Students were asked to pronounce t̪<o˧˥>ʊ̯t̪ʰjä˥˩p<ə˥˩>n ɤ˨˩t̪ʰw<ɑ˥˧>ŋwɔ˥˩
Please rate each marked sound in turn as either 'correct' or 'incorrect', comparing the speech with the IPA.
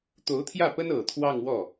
correct, incorrect: ə˥, correct

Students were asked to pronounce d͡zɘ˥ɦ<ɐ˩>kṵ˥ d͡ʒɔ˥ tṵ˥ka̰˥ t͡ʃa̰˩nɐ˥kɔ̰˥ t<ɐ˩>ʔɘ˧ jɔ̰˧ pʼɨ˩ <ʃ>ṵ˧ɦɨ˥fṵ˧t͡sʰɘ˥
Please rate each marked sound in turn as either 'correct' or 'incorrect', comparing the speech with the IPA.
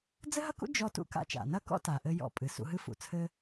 incorrect: ɐ˥, incorrect: a˩, incorrect: s

